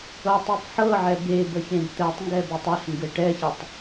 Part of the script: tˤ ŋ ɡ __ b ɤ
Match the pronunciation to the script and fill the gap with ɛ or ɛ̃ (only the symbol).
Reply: ɛ